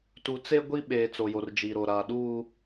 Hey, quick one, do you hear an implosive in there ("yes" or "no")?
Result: yes